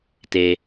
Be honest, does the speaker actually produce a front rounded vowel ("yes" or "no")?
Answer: no